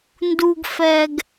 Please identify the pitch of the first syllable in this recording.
low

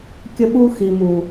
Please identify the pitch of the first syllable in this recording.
high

